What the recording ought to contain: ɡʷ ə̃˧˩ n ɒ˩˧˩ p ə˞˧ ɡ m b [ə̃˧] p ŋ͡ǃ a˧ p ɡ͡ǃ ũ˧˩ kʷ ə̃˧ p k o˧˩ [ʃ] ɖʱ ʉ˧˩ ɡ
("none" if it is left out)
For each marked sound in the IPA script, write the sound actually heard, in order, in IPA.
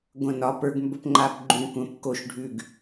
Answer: ə˧, ʃ

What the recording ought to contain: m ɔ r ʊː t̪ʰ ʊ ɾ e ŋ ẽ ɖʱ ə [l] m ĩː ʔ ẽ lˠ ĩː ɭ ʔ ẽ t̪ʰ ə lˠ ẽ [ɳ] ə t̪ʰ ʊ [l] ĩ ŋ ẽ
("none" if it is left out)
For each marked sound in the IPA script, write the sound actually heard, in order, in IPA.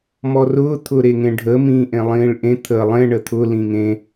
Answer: none, ɳ, l

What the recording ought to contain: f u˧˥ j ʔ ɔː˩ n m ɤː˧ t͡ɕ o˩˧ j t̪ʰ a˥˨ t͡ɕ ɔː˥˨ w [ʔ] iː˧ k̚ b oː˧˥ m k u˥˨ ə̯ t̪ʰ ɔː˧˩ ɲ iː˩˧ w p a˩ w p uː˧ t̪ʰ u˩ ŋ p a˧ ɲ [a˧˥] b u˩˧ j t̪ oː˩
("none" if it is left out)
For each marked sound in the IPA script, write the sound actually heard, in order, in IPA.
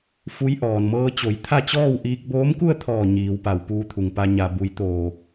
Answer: ʔ, a˩

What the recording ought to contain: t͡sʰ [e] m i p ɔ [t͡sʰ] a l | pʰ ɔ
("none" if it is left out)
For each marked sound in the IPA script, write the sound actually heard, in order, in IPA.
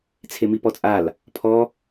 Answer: e, t͡sʼ

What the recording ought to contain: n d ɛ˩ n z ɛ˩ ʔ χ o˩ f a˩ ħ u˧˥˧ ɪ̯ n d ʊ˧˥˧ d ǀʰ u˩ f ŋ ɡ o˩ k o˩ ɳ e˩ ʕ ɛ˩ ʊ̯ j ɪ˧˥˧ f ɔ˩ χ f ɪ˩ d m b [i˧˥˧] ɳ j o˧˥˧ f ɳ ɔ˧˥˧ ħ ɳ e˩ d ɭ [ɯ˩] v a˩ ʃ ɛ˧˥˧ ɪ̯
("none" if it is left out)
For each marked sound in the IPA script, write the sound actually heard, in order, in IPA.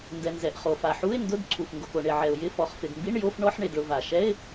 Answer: i˧˥˧, ʊ˩

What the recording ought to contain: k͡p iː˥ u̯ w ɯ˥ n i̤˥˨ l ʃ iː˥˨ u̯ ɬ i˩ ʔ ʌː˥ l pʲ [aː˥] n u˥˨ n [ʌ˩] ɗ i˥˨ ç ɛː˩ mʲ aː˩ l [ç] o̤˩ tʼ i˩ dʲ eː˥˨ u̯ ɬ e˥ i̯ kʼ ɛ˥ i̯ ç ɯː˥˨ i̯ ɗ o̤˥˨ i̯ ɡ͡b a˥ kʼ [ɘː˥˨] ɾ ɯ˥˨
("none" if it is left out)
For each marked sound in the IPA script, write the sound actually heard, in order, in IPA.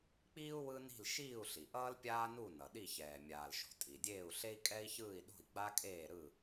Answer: aː˥, ʌ˩, ʃ, eː˥˨

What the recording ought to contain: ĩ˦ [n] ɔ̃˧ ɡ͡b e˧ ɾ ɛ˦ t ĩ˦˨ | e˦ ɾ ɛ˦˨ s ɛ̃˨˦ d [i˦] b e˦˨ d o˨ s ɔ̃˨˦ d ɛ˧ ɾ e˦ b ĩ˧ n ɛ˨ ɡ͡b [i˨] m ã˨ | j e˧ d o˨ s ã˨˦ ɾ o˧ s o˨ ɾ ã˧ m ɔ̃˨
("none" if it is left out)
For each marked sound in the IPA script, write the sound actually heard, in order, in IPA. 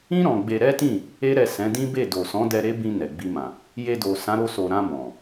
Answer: ɾ, ĩ˦, i˧

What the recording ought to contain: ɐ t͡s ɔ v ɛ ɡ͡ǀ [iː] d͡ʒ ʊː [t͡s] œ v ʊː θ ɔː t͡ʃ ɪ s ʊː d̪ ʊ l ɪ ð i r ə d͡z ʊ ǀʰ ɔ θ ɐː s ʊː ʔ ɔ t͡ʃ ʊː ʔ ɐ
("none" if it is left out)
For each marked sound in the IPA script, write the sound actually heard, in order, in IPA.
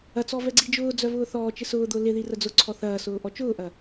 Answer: i, d͡z

